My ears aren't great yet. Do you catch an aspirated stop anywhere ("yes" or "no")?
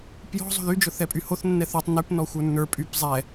no